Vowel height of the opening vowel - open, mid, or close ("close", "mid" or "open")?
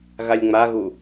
open